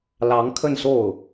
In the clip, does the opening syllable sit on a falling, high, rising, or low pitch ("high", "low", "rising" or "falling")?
rising